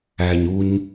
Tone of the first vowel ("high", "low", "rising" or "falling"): low